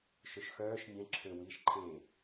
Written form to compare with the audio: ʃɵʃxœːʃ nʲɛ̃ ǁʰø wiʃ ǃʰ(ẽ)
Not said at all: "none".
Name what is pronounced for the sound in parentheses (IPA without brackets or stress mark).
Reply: ẽ